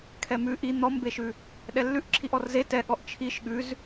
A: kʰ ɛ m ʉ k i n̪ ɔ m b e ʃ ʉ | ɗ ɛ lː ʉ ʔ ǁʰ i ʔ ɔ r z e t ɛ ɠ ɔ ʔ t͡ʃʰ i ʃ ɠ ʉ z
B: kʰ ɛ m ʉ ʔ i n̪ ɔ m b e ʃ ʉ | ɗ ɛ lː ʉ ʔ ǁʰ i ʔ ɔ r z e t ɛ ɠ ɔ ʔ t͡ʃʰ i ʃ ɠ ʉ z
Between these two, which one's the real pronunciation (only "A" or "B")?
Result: B